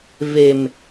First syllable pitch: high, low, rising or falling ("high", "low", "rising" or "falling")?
low